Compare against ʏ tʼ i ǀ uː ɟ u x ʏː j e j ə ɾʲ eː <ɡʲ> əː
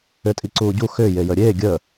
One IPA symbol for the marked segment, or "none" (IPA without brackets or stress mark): ɡʲ